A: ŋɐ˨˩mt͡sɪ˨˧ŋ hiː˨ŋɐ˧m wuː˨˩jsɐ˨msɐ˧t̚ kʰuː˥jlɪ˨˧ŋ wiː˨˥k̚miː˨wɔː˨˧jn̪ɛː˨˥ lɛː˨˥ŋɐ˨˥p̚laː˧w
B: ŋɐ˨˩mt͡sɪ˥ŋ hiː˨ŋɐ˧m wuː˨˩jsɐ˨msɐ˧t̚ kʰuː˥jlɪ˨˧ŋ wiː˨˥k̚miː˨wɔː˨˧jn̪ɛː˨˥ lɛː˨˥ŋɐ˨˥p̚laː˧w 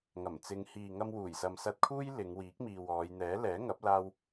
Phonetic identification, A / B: A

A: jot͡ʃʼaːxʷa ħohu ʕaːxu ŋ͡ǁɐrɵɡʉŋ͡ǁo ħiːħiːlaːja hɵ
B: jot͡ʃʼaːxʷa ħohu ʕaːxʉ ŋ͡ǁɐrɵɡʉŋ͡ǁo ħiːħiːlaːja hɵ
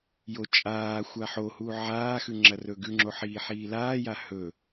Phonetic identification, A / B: B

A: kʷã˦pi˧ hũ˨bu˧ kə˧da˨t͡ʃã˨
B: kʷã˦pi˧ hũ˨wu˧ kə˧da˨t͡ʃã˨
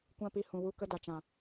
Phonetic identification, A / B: B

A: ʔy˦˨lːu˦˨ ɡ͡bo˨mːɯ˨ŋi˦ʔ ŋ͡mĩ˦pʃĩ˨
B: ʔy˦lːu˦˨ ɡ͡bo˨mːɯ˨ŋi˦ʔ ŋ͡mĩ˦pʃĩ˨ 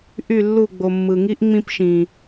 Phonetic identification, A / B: A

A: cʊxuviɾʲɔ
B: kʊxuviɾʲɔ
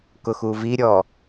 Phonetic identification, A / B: B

